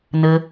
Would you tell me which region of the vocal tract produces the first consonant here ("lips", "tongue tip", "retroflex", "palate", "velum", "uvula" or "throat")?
tongue tip